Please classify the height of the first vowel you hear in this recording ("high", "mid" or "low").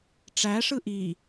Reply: low